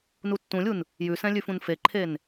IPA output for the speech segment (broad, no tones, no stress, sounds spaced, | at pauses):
n u tː ũ lʲ u n | j ʉ s ɛ̃ lʲ ʉ f ũ n f e ǃʰ e n